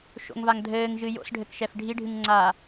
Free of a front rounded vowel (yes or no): yes